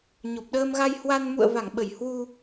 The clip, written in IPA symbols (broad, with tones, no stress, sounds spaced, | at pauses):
ɲ o˨˩ p̚ ɗ əː˧ m ɣ a˧ j h w a˧ n m ṵ˧˨ ə̯ v a˧˩ ŋ ɓ ə˧˩ j h w u˧